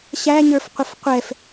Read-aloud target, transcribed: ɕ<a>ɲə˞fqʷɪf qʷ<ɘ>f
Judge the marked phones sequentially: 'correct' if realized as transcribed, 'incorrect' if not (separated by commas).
incorrect, incorrect